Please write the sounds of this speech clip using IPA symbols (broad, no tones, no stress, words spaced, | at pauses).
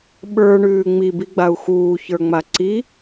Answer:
ɓə˞ɳʉː ŋ͡mibiɡ͡bau̯ xuːçə˞ŋ͡ma ǀi